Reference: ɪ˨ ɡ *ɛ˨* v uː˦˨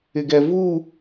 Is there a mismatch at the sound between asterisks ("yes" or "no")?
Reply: no